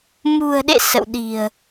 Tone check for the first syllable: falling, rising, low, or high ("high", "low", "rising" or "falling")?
low